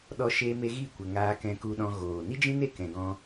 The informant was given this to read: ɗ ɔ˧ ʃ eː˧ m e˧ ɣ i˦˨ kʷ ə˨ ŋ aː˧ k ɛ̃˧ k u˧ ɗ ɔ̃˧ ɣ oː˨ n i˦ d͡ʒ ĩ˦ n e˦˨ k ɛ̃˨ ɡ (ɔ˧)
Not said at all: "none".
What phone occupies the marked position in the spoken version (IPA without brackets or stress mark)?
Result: ɔ̃˧